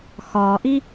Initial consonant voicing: voiceless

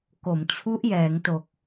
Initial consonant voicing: voiceless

